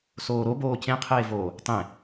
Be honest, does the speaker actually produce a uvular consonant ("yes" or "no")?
yes